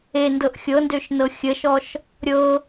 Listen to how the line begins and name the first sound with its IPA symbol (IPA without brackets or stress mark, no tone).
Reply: e